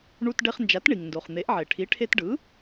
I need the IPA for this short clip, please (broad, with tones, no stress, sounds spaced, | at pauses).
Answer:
ɳ u˧ t ɖ e˧ χ n d͡ʒ a˩˥ t ɳ i˩ ŋ n d o˩ χ n̪ e˩˥ ʔ ʕ e˩ ʈʰ i˩˥ ʈʰ e˧ t ɖ ɯ˩˥